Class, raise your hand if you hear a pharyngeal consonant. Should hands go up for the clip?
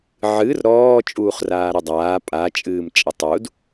yes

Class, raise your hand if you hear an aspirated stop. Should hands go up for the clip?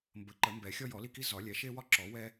no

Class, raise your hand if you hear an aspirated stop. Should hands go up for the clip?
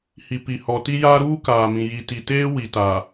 no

